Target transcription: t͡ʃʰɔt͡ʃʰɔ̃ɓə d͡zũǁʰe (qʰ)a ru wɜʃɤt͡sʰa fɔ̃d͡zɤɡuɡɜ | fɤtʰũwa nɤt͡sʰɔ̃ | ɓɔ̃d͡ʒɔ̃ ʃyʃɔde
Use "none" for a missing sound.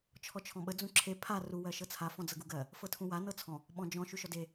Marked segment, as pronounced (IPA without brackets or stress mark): pʰ